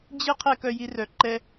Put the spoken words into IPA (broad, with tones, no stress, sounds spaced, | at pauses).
d͡ʑ ɪ˥ qʰ ɛ˥ k œ˦ j i˦ r œ˨ ǃ ɛ˥